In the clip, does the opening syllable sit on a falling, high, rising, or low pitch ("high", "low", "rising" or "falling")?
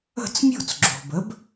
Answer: falling